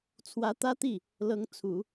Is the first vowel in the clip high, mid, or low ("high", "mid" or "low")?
low